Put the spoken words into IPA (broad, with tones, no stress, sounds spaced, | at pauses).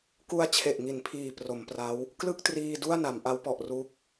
k u˧ a̯ t͡ɕʰ e˨˩ ʔ ŋ i˩˦ n pʰ iː˨˩ p r o˩˦ m p r a˦˥ w | k l ɯ˥˩ k̚ t r iː˧ d u˥˩ a̯ n a˩˦ m ʔ a˦˥ w p ɔ˨˩ ʔ r u˦˥ k̚